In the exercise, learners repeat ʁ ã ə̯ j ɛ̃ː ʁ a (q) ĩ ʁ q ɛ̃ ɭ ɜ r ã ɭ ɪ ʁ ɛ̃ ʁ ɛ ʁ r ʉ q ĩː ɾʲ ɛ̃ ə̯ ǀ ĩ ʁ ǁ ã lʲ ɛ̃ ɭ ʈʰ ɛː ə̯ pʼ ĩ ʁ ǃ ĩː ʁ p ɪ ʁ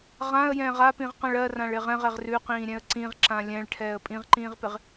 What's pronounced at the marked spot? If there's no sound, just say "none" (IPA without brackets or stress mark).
p